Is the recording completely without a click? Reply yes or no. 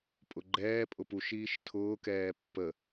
no